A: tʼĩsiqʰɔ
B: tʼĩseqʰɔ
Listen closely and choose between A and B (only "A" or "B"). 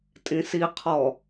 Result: A